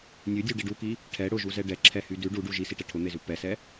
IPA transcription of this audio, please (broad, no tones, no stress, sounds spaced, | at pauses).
nʲ ʉ dʲ u ɖ i ɖ u k i | ʈʰ ɛ ɽ ʊ ʒ u z ɛ ɖ ɛ ǁʰ ɛ h y d ʉ ɖ u ɖ u ʒ i s i ʈ ɛ ʈʰ ʊ n̪ e z ʉ p ɛ s ɛ